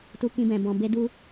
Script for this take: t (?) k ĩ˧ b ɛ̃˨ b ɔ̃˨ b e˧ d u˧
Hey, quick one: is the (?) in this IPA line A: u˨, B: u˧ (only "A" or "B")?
B